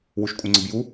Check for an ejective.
present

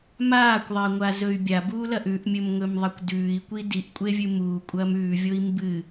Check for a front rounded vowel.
present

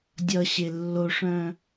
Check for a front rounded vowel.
present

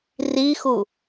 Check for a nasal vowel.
absent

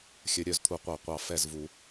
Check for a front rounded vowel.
present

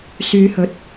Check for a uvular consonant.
absent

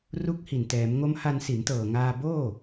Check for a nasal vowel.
absent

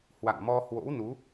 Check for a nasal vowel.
absent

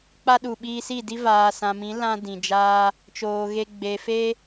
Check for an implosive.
present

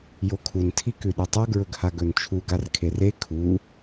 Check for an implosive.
present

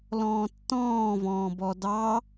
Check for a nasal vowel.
present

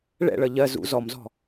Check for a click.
absent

